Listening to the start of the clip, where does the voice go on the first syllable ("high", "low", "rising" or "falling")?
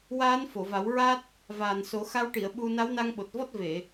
rising